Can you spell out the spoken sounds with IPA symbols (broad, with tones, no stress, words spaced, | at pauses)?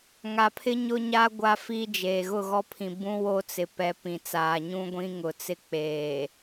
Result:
ŋa˨pʰɪ˦ ɲʊ˦ɲa˦ ɡʷa˦fi˦d͡ʒeː˨ ɣʊ˦˨ɣɔ˦pʰĩ˨ bũ˦ wo˦ t͡sɪ˨pɛ˨˦ pĩ˨t͡saː˨ ɲũ˦ɡʷĩ˦ ŋʊ˨ t͡sɪ˦k͡peː˨